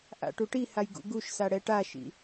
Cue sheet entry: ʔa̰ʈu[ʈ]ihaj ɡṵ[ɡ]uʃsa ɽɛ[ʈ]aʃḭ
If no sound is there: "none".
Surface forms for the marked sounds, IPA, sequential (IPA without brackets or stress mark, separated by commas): ʈ, ɡ, ʈ